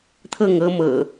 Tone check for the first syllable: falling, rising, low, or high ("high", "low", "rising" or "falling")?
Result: falling